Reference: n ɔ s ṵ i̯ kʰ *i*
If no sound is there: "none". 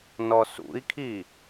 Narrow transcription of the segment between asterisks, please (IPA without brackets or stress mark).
i